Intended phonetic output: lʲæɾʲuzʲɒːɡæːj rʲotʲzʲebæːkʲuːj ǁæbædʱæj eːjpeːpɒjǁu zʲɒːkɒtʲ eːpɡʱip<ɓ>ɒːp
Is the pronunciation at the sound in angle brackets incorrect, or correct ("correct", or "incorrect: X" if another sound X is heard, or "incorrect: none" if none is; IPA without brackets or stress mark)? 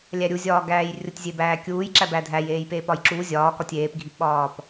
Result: correct